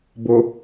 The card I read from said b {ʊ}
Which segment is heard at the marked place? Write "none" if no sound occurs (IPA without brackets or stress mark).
ʊ